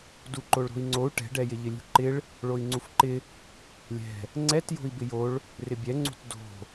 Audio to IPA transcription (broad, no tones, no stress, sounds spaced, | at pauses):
d u ǃ o ɭ ɾ o̤ i̯ ŋ͡ǀ o u̯ ʈ ɛ̤ ɖ ɛ j ɪ ʎ ɪ lʲ ṳ ǃ ɪ ɭ | ɭ o i̯ ŋ͡ǀ u f ǃ ɪ | lʲ ɛ̤ | ŋ͡ǀ ɛ t j o̤ i̯ b ɪ j o ɭ | r ɪ bʲ ɛ ŋ͡ǀ ṳ t d o̤